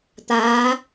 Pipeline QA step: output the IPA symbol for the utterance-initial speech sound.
t̪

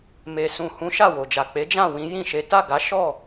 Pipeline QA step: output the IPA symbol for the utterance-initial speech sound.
m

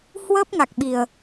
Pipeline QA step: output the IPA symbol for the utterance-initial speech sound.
h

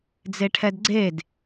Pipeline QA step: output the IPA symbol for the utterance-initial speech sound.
d͡z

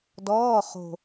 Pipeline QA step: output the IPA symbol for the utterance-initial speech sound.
d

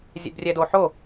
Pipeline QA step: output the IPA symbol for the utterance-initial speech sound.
zʲ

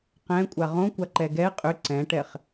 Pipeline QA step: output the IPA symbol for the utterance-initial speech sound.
q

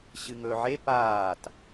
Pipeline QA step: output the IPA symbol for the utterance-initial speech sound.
ɕ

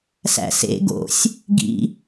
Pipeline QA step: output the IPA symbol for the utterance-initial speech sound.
s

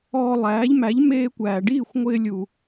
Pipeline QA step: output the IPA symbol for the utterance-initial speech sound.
ɔː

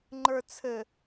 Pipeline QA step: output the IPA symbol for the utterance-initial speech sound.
ŋ͡ǃ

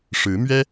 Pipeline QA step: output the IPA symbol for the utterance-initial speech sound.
ʂ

